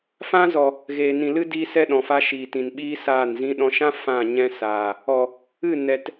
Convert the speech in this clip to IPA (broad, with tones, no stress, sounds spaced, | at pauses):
f ã˦ z ɔ˨ | ɣ eː˨ n ĩ˨ l ɨ˦ d iː˦ s ɛ˦ ɗ ɔ̃˨ f a˦ ʃ iː˨ t ĩ˨ n ɓ iː˦ s aː˦˨ n z ĩ˦ ɗ ɔ̃˧ ʃ ã˦ f ã˦˨ ɲ ɛ̃˦ s aː˨ | ɔ˨ | ɨ˦˨ n ɛ˨ t